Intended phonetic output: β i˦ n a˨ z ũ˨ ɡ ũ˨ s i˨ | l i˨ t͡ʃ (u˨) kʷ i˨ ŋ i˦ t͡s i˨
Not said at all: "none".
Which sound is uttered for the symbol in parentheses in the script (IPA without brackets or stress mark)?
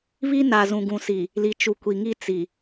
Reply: u˨